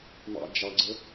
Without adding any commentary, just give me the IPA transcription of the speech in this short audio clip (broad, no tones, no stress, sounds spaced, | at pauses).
m ɑ̰ d͡ʒ ɑ ɡ͡ǀ ə